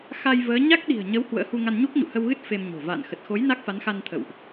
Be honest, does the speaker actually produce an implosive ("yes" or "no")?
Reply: yes